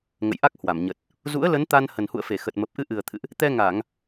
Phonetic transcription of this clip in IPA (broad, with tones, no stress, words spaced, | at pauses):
ŋə̰˧˨jʔa˦˥k̚hwa˧˩mɲə˨˩t̚ | zṵ˧˥ə̯lə˨˦n t̪a˧n hə˨˩nhṵ˧˨ə̯fe˧˩xə˨˩t̚ mə˨˩p̚ʔɨ˧ʔɨ˨˩ə̯t̪ʰɨ̰˧˨ʔ | t̪ɛ˧ŋa˧˩˨ŋ